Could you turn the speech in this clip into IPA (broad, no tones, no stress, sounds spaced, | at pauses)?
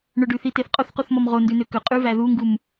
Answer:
ɳ ɵ ɖ ʉ θ i t e θ qʼ o θ q u θ m ɔ m ʁ o n d ʉ n ø k ɵ qʼ ʉ v æ ð u ŋ ɡ u m